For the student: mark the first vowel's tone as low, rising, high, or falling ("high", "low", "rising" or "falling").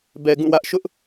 low